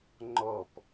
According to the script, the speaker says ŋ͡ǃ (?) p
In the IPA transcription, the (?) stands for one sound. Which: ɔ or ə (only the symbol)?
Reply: ɔ